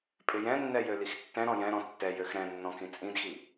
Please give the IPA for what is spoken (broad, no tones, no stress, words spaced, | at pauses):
pʼɪjɛ̃nːɛ jølixtːɛ̃ɾɔ̃ jɛ̃ɾɔ̃ tːɛjøx ɾɛ̃nːɔ̃ kĩt͡sʼĩdxi